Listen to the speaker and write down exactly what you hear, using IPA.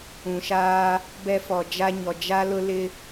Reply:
ũ˨ ʃ aː˦ | b ɛ˦ f ɔ˨ d͡ʒ a˦ ɲ ɔ˨ d͡ʒ a˦ l ʊ˦ l ɪ˦

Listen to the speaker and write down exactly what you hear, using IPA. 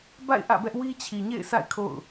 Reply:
b a̰˦˨ ɪ̯ ʔ ä̰˦˨ b ɛ˦ ʔ w i˦ t͡ɕʰ i˨ ɲ ḛ˦˨ ɪ̯ sʰ a̰˦˨ ɪ̯ kʰ o̰˦˨ ʊ̯

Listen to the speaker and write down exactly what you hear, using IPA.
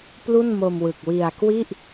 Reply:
p l u˥˩ n m o˧ m w ɯ˨˩ k̚ w i˧ a̯ k w i˥˩ ʔ

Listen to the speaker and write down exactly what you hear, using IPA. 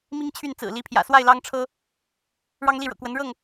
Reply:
m i˦ ŋ t͡ɕʰ y˥˨ n t͡s ɹ̩˨˩ l i˨˦ pʰ j ä̰˨˩ s w a˥˨ ɪ̯ l ɑ˦ ŋ ʈ͡ʂʰ ɤ˦ | ɻ ɑ˦ ŋ l i˥˨ ɻ ɤ̰˨˩ k w ə˨˦ n ɻ ɤ˥˨ ŋ

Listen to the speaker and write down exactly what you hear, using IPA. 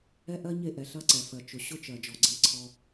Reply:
ɛ˦ ʔ ɜ˦ ɲ e˦˨ ʔ ɛ˨ ɬ ɐ˦ ǀ ɛ˨ f ɜ˨ t͡ʃ ʊ˨ ɕ ʊ˦ t͡ʃ ɜ˨ d͡ʒ ɔ˨ ɡ͡ǀ e˦ ǀʰ ɔ˦

